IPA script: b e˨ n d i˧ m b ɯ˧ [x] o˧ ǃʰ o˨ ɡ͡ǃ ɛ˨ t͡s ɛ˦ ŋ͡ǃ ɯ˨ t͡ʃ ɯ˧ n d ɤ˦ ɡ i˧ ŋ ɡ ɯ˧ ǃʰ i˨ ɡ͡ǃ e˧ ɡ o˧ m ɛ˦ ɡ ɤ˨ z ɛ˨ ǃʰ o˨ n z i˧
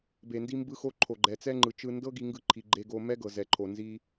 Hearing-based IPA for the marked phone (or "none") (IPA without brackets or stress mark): x